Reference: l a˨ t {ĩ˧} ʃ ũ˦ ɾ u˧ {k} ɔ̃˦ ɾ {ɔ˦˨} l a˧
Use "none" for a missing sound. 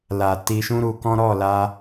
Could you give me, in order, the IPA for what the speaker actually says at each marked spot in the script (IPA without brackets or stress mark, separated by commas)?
i˧, k, ɔ˦˨